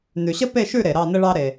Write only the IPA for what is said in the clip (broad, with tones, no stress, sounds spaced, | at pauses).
n ʉ˩ ɕ ə˥ p e˥˨ ʃ ʉ˥˨ ɾ e˩ ɾ ɑ˥˨ n ə˥ ɭ ɑ˥ ɾ e˩